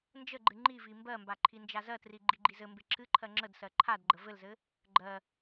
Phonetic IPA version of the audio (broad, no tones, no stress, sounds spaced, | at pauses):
n d͡ʒ ə ɡ͡ǃ ɨ ŋ͡ǃ i v i m b ɜ m b a ǃʰ i n d͡ʒ a z ɜ t r i ɡ͡ǃ i ɡ͡ǃ i z ɘ m b e ǁʰ ɨ ǃʰ ɜ ŋ͡ǁ ə d s ɜ ǃʰ a d ɡ͡ǃ ə v ɘ l z ɘ | ɡ͡ǃ ɜ